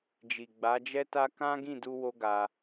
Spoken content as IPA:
d͡ʒ i˨ ɡ͡b a˨˦ d͡ʒ ɛ˦ t a˦ k ã˦ ɡ ĩ˦˨ d u˧ w o˦ ɡ a˧

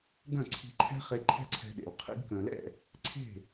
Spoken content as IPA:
ɡ œ̃˦˨ ǀʰ i̤˧ ǃʰ ɛ̤˦ χ e˧ ǃʰ ɛ̤˦ ǀʰ ɛ̤˧ ɗ ḛ˨ w qʰ ḭ˧ ɡ k œ̃˨ l ɛ̰˦˨ | ǀʰ e̤˦˨

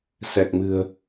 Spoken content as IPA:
s ɛ˨˩ k̚ m ɨ̤˨˩ ə̯

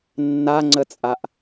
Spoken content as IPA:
nː a ŋ͡ǀ ə t͡sʼ a ʔ

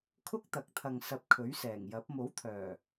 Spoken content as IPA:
kʰ ʊ˥ k̚ t̪ ɐ˨˥ k̚ t̪ʰ ɐ˨ ŋ s ɐ˧ p̚ kʰ ɵ˨˥ ɥ s ɛː˨˩ ŋ j ɐ˨˥ p̚ m o˨˥ w t̪ʰ œː˨˩

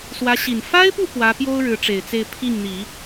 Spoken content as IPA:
s w ä˧˥ ɕ i˨˩ n f a˥ ɪ̯ p u˥˩ p w ä˧˥ p j o˥ ʊ̯ ɻ ɻ̩˧˥ ʈ͡ʂ e˨˩ ɪ̯ t͡s e˥˧ ɪ̯ pʰ i˥˩ ŋ n̪ i˨˩˦

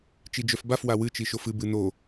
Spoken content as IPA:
t͡ʃ i d͡ʒ œ f b a f w a w ɨ t͡ʃ i ʃ o f ɨ b ɨ n o

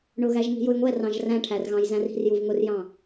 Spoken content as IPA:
ɳ ʊ ɣ æ ʒ ŋ i̤ j ʊ j ŋʷ ɛ r ɑ̃ ʒ r æ̃ ʈʰ æ r ɣ ɑ̃ j z æ̃ r i̤ r j u v ŋ ʊ r j ɑ̃

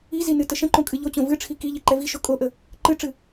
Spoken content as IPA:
i z i n ɨ t ə ʃ ə̃ ǃ õ kʼ ɨ ʎ o t͡ɕ õ v ɨ ʈ͡ʂʰ i k i ʎ i ǃ ɛ v i ʃ o kʼ o ʔ ə | ǃ ɨ ʈ͡ʂ ɨ

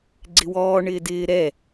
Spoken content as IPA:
ɡ͡ǀ ɪ w ɔː ɳ ɪː d ɪː ɾ ɛ

